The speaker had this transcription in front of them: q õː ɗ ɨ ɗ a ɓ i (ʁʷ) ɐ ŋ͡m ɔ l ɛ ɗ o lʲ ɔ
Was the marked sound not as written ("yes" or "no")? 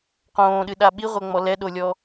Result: no